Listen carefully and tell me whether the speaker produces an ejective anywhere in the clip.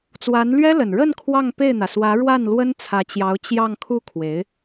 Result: no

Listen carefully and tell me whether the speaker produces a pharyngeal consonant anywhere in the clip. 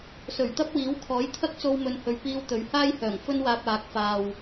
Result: no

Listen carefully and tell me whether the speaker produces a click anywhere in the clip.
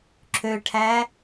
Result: yes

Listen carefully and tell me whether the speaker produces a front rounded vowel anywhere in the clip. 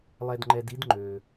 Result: yes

